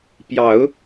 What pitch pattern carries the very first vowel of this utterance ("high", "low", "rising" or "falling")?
low